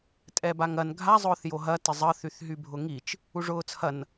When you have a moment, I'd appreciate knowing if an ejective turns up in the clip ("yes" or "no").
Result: yes